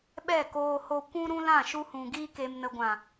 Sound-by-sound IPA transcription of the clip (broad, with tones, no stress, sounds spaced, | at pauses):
ɓ ɛ˦˨ k oː˧ h o˧ kʷ ũ˦ ɾ ũ˦ l ã˦˨ ʃ u˧ h ũ˨ ɡ iː˧ k e˨ m n ə˨ ɡʷ ã˨